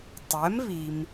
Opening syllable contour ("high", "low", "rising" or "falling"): rising